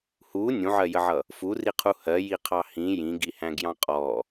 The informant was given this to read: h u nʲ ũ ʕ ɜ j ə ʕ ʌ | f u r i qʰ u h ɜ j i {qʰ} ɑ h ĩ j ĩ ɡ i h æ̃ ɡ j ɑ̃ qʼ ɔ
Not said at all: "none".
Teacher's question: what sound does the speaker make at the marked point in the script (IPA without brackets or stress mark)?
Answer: qʰ